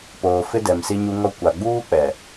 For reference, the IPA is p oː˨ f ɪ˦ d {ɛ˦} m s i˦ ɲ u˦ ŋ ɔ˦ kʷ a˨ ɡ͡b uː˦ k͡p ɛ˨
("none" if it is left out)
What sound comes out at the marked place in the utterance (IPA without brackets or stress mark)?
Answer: ɛ˨